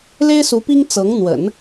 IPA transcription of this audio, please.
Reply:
l e˥ ɪ̯ s u˧˥ p i˥ ŋ t͡s ɤ˧˥ ŋ n̪ w ə̰˨˩˦ n

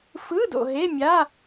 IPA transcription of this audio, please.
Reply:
f ɯ˧˥˧ d o̰˨ ɦ e˧˥˧ mʲ a˧˥˧

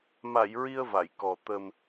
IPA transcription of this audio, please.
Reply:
m a˨˩˨ j ɹ i˧ ə̯ v a˨˩˨ j k ɔ˨˩ t̪ ə˨˩ m

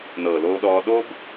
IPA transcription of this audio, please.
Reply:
n ɤː˨ l oː˧ ɗ ɔː˧ ɗ o˦ b

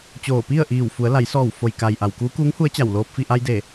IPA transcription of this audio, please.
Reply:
t͡ɕ oː˧˩ p i˥˨ ə̯ ʔ iː˧˩ w f u˩˧ ə̯ l a˩˧ j s ɔː˧˩ w f o˩ j k a˩ j ʔ a˩ w k uː˧˥ k uː˧˥ ŋ h u˧˥ ə̯ t͡ɕ a˧˩ w l oː˧ p̚ f i˥˨ ʔ a˧ j d e˧˩

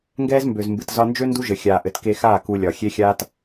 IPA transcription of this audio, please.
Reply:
ŋ ɡ ɛː˦ z m b ø˨ z m b ɨ˨ t z ɒ˧ n d͡ʒ ø˦ n d u˦ ʒ ɘ˨ xʲ aː˨ ʔ ɘ˨ t k e˧ x aː˦˨ k u˧ lʲ ɒ˨ xʲ e˦ xʲ aː˦ t

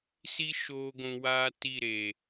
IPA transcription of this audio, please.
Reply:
s i˦ ʃ oː˧ ɡʷ ũ˧ w aː˦ t i˦˨ ɾ e˨

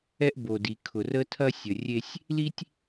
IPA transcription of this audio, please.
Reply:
ɛ˦ ʔ b o˨ d i˨ kʰ ʊ˨ r ə˦ tʰ ɐ˦ sʲ ə˨ rʲ e˦ sʲ | l i˦ tʲ

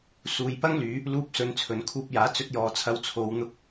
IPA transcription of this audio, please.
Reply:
s uː˨ j p ɐ˥ ŋ l yː˨˧ | l uː˧ p̚ s ɵ˨˧ n t͡sʰ ɵ˨ n kʰ uː˧ p̚ j aː˨˥ t͡s ɵ˧ t̚ j ɔː˨ t͡sʰ ɐ˧ w t͡sʰ o˨˧ w n̪ ʊ˧ k̚

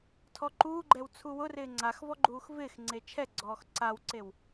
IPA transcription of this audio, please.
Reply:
tʰ ɔ ǃ uː ɡ͡ǃ ɛ w t͡sʰ u w ʊ r ɪː ŋ͡ǀ a x v ɔ ɡ͡ǃ uː x v ɪː x ŋ͡ǀ e t͡ʃʰ ɛ ɡ͡ǀ ɔː x ǀ a w ǀ e w

